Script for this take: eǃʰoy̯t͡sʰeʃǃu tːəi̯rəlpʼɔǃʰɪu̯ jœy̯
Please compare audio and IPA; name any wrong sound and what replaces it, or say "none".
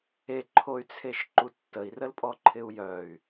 none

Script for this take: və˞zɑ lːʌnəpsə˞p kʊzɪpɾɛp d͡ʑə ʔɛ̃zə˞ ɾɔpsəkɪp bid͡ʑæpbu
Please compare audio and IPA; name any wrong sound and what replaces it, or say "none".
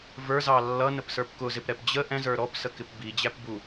none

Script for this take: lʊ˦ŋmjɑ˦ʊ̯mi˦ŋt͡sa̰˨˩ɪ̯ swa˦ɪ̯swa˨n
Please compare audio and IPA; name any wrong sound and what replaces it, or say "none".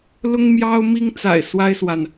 none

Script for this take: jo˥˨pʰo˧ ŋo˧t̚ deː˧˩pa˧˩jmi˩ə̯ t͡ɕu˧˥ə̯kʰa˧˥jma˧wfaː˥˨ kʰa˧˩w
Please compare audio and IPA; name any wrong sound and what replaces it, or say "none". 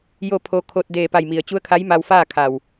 ŋ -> kʰ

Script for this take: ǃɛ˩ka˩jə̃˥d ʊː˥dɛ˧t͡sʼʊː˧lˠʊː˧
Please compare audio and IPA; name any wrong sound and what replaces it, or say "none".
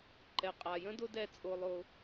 k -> qʼ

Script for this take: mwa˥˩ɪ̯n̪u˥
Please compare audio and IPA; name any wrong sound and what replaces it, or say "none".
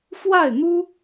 m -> f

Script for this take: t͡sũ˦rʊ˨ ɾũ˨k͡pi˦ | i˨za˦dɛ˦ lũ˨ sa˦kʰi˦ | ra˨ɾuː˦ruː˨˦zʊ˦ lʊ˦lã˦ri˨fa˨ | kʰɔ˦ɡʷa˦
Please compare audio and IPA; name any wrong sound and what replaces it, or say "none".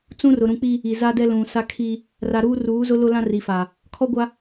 none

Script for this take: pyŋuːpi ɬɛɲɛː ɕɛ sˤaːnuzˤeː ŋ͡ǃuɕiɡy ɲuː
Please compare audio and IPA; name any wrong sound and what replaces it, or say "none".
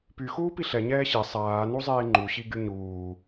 ŋ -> x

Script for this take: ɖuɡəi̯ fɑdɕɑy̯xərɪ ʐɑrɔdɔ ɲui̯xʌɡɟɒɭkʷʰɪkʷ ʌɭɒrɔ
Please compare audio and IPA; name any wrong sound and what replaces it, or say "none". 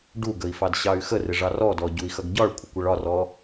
ɲ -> ɟ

